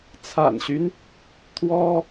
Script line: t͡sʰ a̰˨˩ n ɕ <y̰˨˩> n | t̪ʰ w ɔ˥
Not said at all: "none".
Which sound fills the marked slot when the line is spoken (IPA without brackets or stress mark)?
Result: y˦